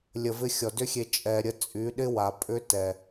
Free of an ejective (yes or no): no